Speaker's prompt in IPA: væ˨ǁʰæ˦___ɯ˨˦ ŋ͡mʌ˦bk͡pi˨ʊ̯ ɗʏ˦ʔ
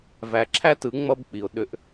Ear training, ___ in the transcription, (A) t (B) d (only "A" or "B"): A